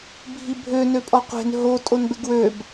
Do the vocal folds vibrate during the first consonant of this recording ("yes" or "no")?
yes